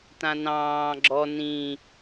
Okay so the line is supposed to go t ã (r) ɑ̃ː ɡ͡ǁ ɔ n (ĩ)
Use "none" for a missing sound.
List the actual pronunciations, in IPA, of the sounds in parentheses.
n, ĩ

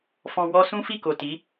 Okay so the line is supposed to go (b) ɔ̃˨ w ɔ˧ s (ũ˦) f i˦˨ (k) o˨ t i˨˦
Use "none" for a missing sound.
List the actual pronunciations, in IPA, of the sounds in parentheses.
f, ũ˦, k

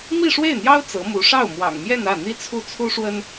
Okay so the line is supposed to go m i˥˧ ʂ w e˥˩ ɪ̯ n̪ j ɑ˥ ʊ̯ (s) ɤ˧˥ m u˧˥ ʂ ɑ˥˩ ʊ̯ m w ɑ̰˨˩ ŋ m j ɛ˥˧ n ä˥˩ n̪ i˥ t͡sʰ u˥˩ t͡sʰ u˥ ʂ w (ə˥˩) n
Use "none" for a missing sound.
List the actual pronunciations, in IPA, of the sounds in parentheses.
t͡s, ə˥

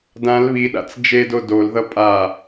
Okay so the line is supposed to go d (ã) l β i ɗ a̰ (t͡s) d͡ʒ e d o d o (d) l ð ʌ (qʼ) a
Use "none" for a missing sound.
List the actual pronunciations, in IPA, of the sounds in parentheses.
ã, t͡s, none, pʼ

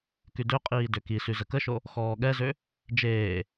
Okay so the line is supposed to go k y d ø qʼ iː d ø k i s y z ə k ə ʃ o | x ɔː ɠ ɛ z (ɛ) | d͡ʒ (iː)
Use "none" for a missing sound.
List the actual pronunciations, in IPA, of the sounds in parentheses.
ø, eː

